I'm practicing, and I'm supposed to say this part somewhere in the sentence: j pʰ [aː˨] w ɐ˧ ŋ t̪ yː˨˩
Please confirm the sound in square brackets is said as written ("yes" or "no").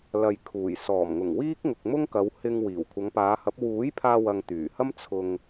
no